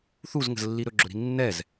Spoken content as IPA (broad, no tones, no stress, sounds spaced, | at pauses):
θ u z ŋ ə̤ z lː i ɾ ɵ ɡ͡ǁ ɵ ɾ i̤ nː ɛ z